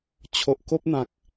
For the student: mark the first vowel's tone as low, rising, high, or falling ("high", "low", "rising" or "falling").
low